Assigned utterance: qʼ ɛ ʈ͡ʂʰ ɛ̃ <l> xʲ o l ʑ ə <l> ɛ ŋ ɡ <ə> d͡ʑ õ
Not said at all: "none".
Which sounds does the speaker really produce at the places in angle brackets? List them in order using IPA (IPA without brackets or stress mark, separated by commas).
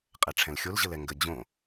l, l, ə